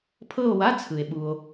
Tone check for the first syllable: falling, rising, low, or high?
falling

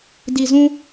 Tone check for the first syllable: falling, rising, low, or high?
low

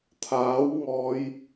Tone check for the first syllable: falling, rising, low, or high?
rising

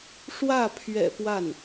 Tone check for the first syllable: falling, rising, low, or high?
falling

